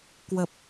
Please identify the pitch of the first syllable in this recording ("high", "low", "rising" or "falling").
low